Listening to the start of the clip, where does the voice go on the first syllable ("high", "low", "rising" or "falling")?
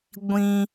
high